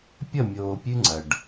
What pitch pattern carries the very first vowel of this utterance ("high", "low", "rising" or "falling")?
falling